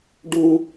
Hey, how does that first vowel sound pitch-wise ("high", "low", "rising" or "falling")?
high